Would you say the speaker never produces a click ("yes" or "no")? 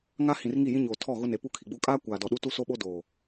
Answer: yes